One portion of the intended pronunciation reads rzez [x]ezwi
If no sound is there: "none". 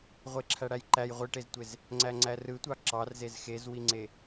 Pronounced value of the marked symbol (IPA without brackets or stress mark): x